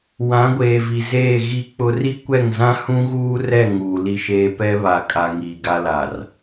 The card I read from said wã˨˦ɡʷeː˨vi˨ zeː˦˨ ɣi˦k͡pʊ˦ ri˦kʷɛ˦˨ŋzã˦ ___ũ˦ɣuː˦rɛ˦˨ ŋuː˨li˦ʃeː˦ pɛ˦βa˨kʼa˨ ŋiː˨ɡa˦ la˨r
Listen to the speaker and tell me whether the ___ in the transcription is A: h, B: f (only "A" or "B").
A